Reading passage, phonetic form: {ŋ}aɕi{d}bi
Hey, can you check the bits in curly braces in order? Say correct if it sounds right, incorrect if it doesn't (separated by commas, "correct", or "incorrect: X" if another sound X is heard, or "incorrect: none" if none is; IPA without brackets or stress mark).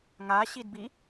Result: correct, correct